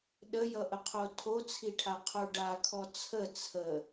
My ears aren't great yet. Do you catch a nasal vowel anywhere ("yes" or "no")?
no